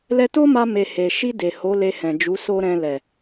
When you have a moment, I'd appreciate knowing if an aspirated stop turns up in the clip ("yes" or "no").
no